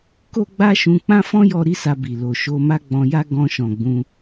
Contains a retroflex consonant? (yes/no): no